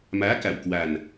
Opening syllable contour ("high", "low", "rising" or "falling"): rising